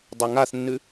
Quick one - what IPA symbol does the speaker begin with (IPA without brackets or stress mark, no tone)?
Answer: dˤ